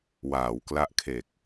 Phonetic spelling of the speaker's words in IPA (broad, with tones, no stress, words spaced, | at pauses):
waː˩˦wkla˦˥ʔkʰe˨˩k̚